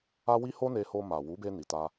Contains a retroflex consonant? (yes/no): no